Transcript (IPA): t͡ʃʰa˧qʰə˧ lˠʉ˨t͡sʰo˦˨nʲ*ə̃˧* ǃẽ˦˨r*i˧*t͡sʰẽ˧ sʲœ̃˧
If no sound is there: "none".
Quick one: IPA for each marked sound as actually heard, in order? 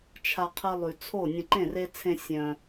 ə̃˧, e˧

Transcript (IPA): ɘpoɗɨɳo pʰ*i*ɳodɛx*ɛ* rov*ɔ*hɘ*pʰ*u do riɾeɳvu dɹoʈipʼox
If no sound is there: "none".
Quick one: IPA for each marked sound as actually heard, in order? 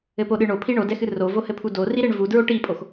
i, ɨ, o, pʰ

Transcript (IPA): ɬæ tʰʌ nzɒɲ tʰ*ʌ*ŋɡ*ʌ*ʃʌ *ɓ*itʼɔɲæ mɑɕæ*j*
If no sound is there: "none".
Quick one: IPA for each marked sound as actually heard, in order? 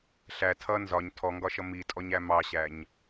ɔ, ɒ, m, ɲ

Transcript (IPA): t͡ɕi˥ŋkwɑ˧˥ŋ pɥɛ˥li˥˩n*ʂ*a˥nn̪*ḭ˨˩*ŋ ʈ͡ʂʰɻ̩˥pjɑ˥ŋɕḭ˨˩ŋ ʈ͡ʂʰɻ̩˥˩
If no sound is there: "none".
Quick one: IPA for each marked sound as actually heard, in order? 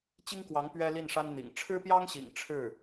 ʂ, ḭ˨˩

